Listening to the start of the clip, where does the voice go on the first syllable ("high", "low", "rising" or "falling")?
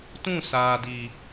falling